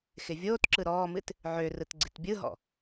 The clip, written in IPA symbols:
xɪvʲoːtǁɯ ɾɔːmɨt | ʕørɯt ɡ͡ǀɪtbʲɯɦɔ̰

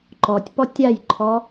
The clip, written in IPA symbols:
ǃɔtʲpɔ tʲajǃʰɔ

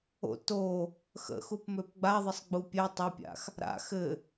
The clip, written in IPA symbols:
o̰ to | xə̰xupmøp ɡ͡baðˤəsˤɡ͡bu pʲɛ tˤapʲa̰x | ɾa̰ xɘ

